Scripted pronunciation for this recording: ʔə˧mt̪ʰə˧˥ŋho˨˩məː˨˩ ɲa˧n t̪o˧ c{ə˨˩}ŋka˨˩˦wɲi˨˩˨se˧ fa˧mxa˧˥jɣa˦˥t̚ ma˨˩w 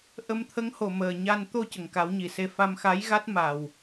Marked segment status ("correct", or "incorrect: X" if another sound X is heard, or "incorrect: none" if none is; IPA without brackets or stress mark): correct